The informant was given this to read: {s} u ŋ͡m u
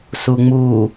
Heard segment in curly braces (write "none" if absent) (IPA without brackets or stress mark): s